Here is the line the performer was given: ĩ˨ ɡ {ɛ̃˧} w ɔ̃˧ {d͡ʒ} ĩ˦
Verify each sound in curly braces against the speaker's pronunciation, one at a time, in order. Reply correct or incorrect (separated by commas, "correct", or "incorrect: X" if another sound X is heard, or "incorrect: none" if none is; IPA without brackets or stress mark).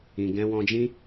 correct, correct